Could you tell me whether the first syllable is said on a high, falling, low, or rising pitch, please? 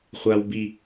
high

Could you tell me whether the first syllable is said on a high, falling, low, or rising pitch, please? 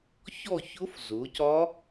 falling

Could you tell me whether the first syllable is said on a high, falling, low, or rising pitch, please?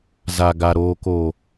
low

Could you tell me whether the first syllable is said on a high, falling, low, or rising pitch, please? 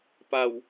low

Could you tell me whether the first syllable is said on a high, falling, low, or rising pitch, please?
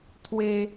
high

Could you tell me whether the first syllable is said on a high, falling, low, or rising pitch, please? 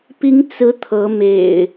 rising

